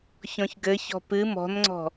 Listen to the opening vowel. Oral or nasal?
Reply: nasal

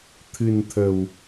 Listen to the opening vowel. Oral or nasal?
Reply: oral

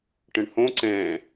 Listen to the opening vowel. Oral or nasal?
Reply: nasal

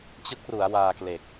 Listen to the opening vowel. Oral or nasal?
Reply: oral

